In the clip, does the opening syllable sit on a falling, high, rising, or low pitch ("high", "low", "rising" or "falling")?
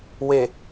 low